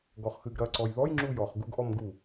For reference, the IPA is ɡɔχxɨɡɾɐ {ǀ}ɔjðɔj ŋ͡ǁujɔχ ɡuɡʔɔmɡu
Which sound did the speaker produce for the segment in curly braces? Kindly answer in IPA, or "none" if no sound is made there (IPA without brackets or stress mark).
ǀ